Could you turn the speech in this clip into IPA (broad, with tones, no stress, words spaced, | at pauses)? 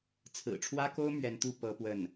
t͡sʰɹ̩˨˩ʈ͡ʂʰwä˥ko˥ʊ̯ mɥɛ˧˥nt̪u˥˩ pɤ˥pwə˥˩n